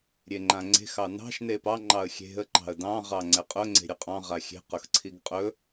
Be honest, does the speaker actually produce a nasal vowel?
yes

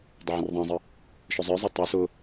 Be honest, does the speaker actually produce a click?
no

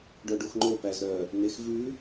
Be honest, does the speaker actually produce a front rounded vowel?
yes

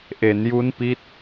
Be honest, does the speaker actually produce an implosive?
no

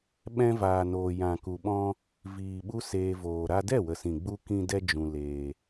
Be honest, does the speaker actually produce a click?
no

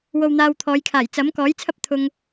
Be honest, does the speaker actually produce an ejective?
no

